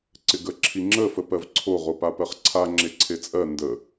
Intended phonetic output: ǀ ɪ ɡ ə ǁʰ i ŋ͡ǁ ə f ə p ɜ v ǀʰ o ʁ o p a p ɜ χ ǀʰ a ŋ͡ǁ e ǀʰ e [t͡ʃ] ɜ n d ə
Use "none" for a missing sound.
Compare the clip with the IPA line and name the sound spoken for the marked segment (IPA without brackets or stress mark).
t͡sʼ